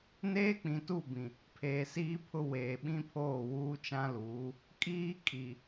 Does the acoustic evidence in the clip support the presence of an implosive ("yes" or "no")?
yes